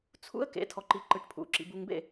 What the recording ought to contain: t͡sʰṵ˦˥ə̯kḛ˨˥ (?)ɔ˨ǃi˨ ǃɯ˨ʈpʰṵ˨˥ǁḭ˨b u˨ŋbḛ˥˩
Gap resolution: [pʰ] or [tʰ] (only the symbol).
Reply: tʰ